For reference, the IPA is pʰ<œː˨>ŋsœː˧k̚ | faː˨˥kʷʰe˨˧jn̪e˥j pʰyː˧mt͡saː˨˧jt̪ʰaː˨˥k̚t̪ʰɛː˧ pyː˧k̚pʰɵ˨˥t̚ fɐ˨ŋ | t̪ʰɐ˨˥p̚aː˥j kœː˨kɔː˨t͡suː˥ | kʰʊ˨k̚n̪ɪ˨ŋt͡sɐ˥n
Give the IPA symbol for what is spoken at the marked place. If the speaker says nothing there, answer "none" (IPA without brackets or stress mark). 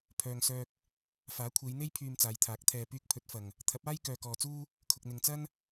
œː˨